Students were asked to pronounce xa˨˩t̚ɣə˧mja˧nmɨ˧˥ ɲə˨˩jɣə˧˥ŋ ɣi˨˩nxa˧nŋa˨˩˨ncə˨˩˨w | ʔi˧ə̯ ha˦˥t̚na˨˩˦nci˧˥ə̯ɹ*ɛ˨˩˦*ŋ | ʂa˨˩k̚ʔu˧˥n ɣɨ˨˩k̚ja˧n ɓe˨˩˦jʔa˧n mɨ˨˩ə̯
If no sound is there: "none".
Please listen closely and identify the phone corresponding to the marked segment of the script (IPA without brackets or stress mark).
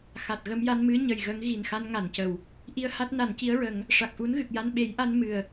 ə˨˩˦